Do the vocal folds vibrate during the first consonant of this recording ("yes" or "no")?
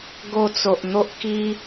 yes